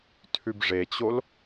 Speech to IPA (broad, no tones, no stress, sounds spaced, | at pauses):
tʰ ʉ b ʐ e t͡ɕ o l